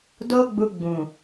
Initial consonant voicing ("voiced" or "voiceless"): voiced